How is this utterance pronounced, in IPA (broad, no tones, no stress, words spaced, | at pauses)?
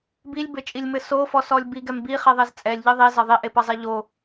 bilʲbɘt͡ʃʼilʲmɘ sofɔsɔlʲ biɡɛm biχeðˤez t͡sʼɛlʲʎɨ ðˤizɐ ðˤiʔepɐzˤɛ ʎo